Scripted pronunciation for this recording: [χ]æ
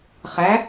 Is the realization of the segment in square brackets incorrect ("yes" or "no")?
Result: no